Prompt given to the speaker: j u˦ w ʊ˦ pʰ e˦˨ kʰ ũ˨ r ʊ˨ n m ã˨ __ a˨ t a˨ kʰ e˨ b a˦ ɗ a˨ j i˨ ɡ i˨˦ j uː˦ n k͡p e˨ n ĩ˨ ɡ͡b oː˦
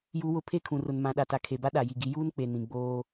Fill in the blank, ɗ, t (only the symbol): ɗ